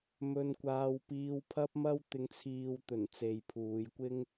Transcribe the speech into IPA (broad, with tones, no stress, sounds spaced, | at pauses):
m ɵ˧ n kʷ aː˧ w p iː˧ w pʰ ɐ˥ p̚ m ɐ˥ w t̪ ɪ˨˧ ŋ t͡sʰ iː˨ w t̪ ɵ˨˩ n t͡s e˨ j pʰ uː˨˧ j kʷ ɪ˥ ŋ